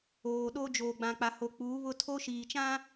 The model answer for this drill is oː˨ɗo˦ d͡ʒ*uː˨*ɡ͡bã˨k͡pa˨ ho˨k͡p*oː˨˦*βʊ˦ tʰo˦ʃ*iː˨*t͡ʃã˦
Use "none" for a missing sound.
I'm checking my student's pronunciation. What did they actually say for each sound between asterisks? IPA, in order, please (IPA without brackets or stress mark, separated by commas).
oː˨, uː˨˦, iː˨